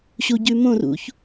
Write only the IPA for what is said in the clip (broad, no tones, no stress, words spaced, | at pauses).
ɕuɟʉmõr ṵç